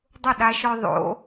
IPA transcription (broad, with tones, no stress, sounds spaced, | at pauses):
dˤ ʊ˥˨ ɗ a˦ ʃ ɔ˦ ðˤ o̰˨˥